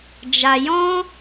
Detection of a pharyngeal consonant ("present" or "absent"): absent